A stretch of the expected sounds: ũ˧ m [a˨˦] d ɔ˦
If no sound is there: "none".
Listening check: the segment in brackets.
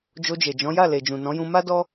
a˦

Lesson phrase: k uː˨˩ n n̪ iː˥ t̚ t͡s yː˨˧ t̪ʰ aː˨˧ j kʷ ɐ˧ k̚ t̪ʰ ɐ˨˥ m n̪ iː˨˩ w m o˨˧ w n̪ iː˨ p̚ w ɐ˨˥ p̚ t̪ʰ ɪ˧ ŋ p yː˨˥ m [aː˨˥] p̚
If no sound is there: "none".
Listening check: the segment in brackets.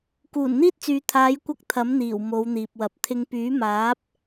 aː˨˥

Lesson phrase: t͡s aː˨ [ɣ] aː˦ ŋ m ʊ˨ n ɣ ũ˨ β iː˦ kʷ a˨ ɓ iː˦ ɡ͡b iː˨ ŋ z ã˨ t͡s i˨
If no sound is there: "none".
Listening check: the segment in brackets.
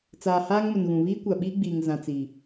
h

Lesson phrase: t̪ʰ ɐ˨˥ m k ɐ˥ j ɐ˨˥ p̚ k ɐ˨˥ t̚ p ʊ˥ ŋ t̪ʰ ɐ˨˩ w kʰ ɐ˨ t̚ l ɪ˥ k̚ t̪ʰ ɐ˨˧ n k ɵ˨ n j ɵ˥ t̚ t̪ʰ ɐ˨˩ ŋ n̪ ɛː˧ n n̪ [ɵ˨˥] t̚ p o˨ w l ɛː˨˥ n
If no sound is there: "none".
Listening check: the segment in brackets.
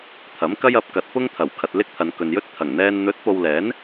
ɵ˨˥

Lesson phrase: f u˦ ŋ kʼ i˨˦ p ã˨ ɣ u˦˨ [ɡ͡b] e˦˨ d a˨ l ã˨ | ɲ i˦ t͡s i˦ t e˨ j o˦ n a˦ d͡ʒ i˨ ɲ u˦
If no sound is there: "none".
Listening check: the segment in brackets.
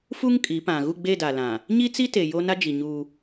ɡ͡b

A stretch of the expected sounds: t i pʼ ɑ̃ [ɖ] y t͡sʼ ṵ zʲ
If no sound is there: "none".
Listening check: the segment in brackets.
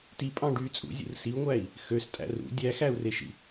ɖ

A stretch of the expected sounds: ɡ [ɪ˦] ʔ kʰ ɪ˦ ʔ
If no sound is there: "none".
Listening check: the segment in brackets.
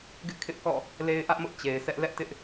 ɪ˦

